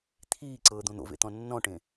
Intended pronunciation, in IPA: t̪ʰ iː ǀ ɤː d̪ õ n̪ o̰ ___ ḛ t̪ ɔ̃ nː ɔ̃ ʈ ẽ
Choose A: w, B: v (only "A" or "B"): B